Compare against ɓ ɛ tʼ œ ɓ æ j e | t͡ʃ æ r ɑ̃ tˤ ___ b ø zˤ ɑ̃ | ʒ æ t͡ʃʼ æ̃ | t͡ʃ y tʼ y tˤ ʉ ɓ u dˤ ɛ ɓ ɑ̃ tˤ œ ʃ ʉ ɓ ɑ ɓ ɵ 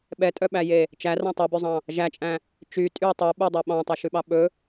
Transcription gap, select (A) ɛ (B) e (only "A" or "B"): B